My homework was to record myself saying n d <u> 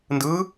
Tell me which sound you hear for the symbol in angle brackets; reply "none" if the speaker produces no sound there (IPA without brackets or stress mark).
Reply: ɯ